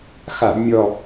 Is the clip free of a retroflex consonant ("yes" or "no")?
yes